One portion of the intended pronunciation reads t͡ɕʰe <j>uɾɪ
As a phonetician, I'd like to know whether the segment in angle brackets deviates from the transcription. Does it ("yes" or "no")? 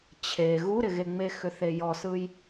yes